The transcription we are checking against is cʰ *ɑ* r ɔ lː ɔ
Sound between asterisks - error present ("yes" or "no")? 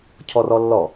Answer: yes